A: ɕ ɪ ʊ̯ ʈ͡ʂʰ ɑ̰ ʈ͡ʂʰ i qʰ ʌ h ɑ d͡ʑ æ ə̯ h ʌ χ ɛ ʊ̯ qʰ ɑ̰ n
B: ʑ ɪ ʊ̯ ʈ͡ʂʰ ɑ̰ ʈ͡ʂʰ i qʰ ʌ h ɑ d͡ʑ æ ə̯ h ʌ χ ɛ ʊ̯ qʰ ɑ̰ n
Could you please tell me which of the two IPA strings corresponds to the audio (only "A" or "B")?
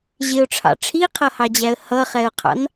B